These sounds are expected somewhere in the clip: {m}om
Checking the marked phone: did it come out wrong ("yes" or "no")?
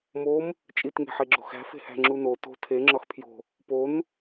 no